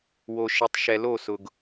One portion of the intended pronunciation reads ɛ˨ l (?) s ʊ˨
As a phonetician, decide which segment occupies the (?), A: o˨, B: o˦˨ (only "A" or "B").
B